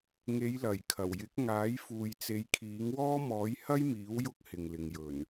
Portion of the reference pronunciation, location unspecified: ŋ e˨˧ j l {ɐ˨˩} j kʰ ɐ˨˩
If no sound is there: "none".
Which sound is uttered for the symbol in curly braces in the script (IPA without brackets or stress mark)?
ɐ˨˩